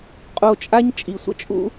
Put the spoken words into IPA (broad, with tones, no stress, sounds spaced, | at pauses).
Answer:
qʼ o˧ t͡ʃʼ a˦ ɲ t͡ʃʼ i˨ sʷ ə̰˦ t͡ʃʼ ṵ˦